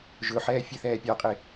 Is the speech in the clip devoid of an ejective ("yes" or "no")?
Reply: no